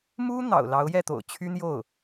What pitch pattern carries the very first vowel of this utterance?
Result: high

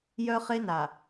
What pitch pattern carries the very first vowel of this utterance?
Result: high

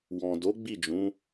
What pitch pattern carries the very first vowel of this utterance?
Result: low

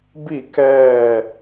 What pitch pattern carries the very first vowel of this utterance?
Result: falling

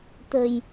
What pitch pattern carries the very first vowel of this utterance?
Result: low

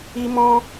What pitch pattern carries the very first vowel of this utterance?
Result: high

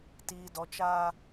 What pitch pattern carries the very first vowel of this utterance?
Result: low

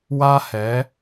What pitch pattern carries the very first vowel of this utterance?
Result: high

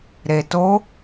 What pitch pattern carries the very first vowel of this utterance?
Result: low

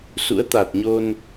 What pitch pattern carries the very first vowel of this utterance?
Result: rising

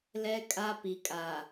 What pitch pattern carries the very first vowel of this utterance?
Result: high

